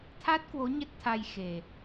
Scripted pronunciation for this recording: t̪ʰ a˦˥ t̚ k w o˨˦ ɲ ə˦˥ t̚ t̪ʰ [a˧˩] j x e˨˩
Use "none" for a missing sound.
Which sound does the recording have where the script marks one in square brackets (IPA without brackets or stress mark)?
a˧